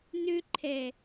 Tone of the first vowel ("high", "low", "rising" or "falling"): high